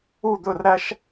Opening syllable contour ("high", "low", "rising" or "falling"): falling